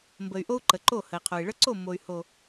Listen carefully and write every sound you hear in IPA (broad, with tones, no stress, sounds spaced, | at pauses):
m b ə˨ y̯ ʔ o˦ u̯ ǃ ə˨ ǃ o˦˨ h ə˨ i̯ qʰ o˨ i̯ ɭ ə˦ ǀ o˦˨ mː o˨ y̯ h o˨